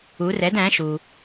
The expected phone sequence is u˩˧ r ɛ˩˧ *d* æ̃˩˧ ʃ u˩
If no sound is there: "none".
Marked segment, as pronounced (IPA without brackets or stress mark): d